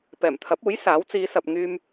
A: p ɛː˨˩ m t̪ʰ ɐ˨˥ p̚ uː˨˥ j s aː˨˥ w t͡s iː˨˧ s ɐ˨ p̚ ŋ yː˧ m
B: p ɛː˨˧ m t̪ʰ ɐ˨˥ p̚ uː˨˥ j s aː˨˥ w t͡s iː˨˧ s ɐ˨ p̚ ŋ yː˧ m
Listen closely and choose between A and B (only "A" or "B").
A